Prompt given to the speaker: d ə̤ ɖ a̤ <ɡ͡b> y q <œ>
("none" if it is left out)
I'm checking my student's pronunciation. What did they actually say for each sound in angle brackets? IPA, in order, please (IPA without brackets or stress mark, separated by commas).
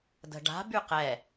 b, ɛ